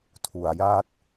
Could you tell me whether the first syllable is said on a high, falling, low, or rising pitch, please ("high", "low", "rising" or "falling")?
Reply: low